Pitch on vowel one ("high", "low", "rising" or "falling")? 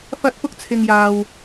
high